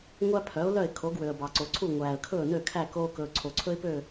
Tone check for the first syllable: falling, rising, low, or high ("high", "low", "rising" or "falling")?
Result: high